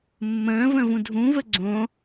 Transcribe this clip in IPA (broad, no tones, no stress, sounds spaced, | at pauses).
mː ə̃ː v ə̃ v ũ dʱ ũ v ə ɡ͡ǀ õ